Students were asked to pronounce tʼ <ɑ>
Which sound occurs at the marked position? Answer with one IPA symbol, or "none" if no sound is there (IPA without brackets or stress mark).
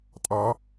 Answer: ɑ